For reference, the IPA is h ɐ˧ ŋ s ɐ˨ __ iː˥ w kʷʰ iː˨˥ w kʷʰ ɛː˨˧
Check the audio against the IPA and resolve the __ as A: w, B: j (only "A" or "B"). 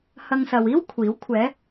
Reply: A